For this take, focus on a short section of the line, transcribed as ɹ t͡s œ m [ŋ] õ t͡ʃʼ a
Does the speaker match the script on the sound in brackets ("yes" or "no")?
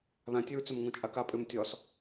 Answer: yes